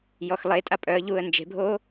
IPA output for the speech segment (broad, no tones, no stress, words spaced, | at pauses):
jɔxlˠetʼa pʼœə̯ʎuːə̯ nd͡ʒe̤bʱoː